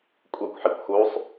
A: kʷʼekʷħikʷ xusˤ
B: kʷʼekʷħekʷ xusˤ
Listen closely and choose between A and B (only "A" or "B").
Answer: A